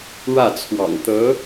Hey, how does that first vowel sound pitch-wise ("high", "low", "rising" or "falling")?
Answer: falling